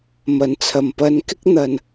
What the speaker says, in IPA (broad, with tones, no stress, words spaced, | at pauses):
mɐ˨˩nt͡sʰɐ˨˩m pɐ˨nkɪ˥k̚ n̪ɐ˨˩n